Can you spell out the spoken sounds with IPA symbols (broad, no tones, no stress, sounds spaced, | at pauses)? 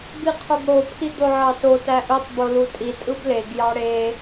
b i qʰ o ɡ ɽ o pʰ i d̪ o ʕ ɑ t o t æ ʔ ɯ tˤ b o l u tʼ i tʼ ɯ b l e ɡ j ɑ ɽ e